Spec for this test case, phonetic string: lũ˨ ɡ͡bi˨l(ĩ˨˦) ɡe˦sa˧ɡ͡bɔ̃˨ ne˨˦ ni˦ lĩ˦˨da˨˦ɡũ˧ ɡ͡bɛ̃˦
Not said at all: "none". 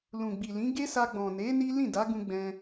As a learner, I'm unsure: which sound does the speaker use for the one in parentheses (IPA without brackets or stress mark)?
ĩ˨˦